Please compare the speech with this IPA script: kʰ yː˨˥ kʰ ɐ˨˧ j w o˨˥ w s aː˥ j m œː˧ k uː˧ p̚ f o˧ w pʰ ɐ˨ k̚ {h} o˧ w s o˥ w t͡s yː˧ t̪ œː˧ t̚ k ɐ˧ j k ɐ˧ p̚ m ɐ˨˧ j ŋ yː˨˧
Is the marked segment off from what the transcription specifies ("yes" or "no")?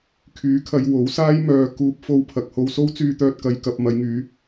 no